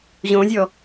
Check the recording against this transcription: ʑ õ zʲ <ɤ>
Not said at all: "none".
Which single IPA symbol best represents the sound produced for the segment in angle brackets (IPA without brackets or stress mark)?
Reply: ɔ